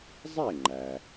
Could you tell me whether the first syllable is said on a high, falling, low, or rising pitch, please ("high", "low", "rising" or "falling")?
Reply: falling